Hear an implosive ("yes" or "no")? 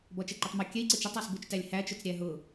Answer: no